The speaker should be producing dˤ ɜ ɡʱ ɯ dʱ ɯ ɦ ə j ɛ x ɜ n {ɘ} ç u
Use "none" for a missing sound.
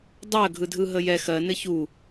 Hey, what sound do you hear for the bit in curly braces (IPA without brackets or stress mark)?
ɘ